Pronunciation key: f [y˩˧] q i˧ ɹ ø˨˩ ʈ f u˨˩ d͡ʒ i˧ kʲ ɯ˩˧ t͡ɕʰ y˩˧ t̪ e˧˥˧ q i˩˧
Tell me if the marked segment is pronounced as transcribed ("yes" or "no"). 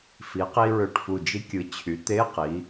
no